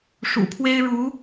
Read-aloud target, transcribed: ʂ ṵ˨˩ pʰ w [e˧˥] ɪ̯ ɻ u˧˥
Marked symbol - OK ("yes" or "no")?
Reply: no